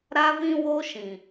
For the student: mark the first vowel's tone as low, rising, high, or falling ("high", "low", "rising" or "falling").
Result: high